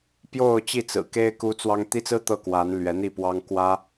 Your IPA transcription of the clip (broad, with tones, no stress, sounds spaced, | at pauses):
p j o˥˧ ʊ̯ t͡ɕ i˥˩ t͡s ɹ̩˨˩ k e˥ ɪ̯ k u˥ t͡s w ɑ˥ ŋ t̪ i˥ t͡s ɹ̩˥ t̪ ɤ˥˩ k w a˧˥ n l ɥ ɛ˧˥ n̪ i˥˩ p w ɑ˥ ŋ k w ä˥